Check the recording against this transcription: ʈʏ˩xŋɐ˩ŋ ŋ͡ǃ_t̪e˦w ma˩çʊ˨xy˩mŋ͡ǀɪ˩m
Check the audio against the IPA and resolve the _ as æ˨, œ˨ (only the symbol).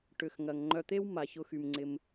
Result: œ˨